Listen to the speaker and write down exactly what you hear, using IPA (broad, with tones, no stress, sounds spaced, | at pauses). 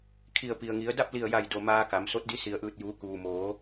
kʰ i˧˩ ə̯ p i˩ ə̯ ŋ i˩˧ ə̯ d a˥˨ p̚ l i˧˩ ə̯ j a˧˩ j d o˩ m aː˧ k a˩˧ m s o˧˥ t̚ d i˧˥ s i˩ ə̯ ʔ ɯː˧˩ t̚ j uː˩˧ k uː˩ m oː˩˧